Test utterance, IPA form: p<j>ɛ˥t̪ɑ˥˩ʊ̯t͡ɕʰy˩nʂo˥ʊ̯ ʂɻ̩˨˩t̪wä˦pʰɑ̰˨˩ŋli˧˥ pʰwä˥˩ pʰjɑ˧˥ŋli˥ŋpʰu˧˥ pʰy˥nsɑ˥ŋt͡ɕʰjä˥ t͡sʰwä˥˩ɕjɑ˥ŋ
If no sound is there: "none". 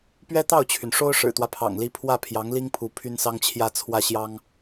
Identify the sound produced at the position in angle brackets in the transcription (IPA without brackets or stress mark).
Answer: ɥ